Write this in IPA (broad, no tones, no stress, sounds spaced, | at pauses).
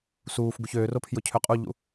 s uː f ɡ u ç øː r o pʰ j ʊ cʰ ø qʼ u ʎ ṵ